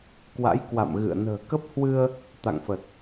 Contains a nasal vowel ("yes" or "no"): no